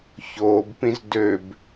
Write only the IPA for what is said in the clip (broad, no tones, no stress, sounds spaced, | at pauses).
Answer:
ç oː b p ĩ z d ø b